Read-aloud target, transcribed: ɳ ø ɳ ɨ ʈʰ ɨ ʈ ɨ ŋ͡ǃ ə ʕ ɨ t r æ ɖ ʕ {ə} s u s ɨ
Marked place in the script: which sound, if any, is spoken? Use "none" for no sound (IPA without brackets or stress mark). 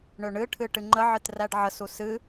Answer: ə